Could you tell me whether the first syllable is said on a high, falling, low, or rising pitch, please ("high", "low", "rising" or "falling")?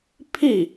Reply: falling